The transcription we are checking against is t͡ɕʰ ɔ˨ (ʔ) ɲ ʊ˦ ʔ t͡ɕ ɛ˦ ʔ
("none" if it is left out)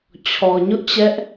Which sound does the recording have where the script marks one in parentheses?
none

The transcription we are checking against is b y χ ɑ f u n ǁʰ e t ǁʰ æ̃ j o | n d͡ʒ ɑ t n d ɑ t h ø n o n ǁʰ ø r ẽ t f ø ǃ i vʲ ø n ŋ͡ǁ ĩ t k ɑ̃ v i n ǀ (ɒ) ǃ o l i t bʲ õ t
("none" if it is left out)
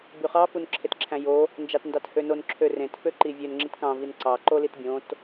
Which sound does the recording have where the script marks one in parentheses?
ɑ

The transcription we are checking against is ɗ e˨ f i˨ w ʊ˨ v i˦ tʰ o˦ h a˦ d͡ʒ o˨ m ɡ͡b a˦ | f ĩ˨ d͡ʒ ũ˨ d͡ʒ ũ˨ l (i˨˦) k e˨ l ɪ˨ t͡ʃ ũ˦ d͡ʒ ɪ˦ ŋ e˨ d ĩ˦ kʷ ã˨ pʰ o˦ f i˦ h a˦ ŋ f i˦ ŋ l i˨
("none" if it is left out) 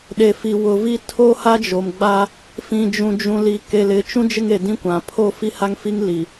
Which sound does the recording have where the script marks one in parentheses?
i˨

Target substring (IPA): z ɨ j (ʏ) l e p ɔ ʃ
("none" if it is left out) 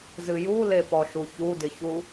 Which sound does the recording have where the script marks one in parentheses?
u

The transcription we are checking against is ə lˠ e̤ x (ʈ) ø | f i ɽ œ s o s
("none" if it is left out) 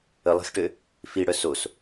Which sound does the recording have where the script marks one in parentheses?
ʈ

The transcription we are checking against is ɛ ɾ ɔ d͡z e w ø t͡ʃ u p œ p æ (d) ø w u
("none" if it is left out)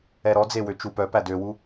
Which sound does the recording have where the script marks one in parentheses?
d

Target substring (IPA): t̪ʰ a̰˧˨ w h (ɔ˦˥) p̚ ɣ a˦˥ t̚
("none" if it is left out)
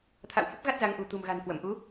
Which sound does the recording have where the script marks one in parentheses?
ə˦˥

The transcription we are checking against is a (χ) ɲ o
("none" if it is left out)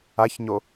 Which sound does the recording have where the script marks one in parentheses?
ç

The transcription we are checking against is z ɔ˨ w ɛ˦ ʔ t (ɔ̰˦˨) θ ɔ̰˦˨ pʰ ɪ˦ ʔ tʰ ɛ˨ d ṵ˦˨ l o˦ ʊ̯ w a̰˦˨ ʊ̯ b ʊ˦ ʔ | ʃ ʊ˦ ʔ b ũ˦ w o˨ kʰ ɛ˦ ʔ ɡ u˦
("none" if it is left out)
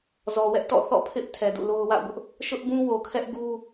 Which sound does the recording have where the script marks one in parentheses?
ɔ̰˦˨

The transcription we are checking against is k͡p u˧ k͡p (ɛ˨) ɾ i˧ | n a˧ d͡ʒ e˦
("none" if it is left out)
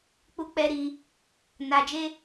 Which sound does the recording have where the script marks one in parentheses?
ɛ˧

